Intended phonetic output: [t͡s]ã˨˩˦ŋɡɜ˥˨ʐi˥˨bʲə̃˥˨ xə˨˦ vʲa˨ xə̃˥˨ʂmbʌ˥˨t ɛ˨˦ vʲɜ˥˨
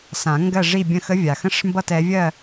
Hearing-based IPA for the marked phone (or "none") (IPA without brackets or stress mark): s